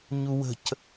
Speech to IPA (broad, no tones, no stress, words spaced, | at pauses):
ɲuwə̤c